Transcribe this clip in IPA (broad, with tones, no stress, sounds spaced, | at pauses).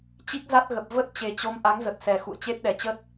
t͡ɕ i˦˥ k̚ z a˦˥ t̚ ɣ ə˨˩ p̚ v ə˦˥ t̚ t͡ɕ e˨˩ t͡ɕ o˨˦ m ʔ a˨˦ ŋ z ə˨˩ t̚ s ɛ˨˩ x ṵ˧˨ ə̯ t͡ɕ e˦˥ t̚ ɗ ɛ˨˩ t͡ɕ ə˦˥ t̚